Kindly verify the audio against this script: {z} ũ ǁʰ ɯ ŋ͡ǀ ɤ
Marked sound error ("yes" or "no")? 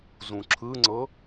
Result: no